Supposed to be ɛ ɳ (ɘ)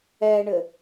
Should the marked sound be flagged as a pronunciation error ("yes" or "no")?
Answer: no